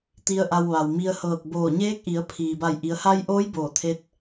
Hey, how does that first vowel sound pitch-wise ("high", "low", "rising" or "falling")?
low